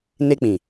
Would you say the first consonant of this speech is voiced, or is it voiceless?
voiced